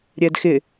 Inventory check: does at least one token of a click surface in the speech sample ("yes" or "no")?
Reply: no